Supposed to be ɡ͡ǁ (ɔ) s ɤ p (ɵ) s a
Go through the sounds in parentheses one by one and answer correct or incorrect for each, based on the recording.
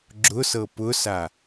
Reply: incorrect: ʊ, incorrect: ʊ

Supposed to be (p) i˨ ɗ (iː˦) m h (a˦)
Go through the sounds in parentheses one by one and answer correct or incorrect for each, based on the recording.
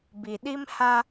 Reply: incorrect: b, incorrect: i˦, correct

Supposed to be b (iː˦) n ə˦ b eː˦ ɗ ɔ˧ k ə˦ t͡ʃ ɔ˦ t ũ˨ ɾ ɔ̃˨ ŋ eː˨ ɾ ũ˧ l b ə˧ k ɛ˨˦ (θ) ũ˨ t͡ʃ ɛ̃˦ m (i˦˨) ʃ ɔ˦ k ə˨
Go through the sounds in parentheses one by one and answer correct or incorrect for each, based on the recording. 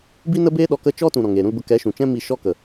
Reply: incorrect: i˦, incorrect: ʃ, correct

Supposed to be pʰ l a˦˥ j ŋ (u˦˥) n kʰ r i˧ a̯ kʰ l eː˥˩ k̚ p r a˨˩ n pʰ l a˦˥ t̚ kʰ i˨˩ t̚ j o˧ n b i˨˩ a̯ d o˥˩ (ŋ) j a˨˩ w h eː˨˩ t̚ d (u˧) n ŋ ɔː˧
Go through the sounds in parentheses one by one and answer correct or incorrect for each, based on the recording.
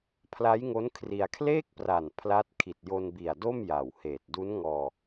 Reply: incorrect: o˦˥, incorrect: m, incorrect: u˦˥

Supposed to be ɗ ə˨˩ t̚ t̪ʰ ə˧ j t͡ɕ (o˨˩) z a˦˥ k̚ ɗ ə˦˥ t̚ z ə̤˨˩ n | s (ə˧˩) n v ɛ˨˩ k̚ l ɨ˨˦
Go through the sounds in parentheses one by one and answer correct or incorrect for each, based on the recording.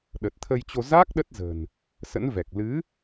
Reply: incorrect: o˧, incorrect: ə̰˧˥

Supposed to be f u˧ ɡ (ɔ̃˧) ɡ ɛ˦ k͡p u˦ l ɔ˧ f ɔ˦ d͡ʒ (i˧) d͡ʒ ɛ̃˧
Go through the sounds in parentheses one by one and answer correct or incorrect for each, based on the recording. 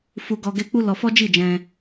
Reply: incorrect: ɔ˧, incorrect: i˦˨

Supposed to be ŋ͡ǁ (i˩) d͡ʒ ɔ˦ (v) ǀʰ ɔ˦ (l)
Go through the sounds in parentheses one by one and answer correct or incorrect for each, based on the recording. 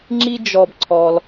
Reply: incorrect: i˥, incorrect: b, correct

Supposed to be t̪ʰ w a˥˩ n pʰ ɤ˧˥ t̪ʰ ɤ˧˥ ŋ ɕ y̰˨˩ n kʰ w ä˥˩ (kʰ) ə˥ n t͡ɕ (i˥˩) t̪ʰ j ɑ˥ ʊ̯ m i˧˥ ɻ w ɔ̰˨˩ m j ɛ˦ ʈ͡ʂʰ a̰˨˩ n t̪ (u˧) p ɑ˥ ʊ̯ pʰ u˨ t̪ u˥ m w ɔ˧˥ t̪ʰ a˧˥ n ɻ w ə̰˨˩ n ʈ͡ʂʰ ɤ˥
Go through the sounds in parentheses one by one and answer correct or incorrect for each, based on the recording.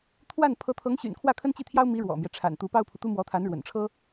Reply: correct, correct, incorrect: u˧˥

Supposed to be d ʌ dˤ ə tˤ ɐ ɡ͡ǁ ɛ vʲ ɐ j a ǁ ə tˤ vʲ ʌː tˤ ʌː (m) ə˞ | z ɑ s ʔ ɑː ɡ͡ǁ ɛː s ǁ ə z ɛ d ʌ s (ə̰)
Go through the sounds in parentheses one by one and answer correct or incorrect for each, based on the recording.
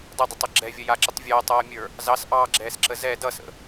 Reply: incorrect: mʲ, correct

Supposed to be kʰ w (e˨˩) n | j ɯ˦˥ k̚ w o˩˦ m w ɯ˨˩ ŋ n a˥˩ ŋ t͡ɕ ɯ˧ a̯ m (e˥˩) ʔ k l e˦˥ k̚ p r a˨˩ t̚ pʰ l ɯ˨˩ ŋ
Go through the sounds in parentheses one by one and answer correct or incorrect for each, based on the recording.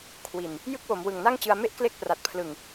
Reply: incorrect: i˨˩, correct

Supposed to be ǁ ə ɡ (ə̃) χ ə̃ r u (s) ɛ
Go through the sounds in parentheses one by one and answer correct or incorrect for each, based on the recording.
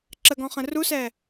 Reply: incorrect: ɔ̃, correct

